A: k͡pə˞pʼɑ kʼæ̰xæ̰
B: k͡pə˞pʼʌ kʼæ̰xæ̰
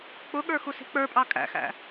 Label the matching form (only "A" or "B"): A